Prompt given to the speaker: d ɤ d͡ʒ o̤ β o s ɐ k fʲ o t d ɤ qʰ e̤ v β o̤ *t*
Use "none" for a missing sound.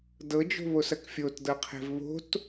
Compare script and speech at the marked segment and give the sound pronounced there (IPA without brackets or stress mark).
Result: t